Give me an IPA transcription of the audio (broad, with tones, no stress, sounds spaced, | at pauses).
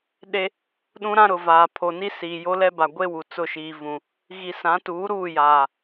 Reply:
ɗ e˦ | ɗ ũ˦ ɾ ã˦ ɾ ʊ˨ v aː˨ pʰ o˨ n i˦ s iː˨ j o˦ l ɛ˦ b a˨ ɡʷ e˦ w u˨ t͡s ʊ˦˨ ʃ iː˨ v ũ˨ | ɣ i˨ s ã˨˦ t uː˨˦ ɾ uː˦˨ j aː˨